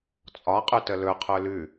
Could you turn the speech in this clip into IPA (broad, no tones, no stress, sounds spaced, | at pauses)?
t͡sʼ ɒ qʼ ʉ t ə l ɵ qʰ ɵ l ʉ